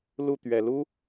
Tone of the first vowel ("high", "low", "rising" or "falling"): falling